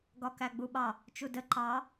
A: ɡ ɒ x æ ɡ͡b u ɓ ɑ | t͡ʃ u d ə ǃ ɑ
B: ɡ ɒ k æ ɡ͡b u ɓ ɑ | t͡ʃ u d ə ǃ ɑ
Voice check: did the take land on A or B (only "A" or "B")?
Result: B